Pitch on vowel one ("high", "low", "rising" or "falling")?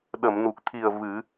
low